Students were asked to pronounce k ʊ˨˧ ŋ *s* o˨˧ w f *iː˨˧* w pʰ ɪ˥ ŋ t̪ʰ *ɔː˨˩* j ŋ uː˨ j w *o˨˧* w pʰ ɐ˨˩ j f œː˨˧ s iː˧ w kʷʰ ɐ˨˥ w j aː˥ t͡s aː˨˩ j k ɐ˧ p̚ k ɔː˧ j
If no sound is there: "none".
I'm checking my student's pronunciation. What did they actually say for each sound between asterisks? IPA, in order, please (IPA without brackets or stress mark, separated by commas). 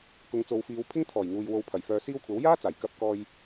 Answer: t͡s, iː˨˧, ɔː˨˩, o˨